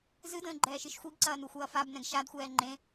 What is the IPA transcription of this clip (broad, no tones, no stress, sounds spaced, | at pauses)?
z ɨ d ə̃ː ɡ͡ǃ ɛː ʃ ɨ ʃ xʷ i ɡ ǀ ɐː n u xʷ ɐː f a b n ɛ̃ ɡ ʃ a d xʷ ɛː ŋ͡ǃ ẽ